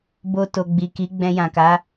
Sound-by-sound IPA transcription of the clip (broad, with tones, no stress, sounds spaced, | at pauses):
b o˧ t o˨ ɡ͡b i˨ k i˨˦ ɡ͡b ɛ̃˧ j ã˨ k a˨˦